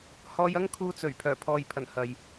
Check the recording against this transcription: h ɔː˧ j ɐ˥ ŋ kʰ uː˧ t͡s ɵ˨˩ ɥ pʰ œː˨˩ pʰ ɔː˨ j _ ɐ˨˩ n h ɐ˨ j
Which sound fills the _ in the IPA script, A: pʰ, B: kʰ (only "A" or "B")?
A